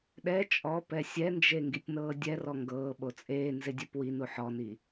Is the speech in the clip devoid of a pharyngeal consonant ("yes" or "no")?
no